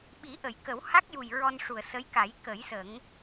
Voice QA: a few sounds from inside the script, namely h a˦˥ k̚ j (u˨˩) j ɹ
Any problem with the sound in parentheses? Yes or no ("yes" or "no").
no